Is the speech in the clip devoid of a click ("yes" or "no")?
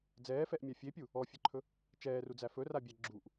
no